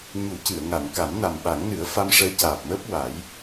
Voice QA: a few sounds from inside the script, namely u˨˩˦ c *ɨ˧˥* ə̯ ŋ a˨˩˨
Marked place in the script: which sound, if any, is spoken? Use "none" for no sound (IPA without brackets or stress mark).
ɨ˨˩˨